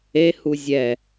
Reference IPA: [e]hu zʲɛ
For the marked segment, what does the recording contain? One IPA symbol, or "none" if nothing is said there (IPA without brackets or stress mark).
e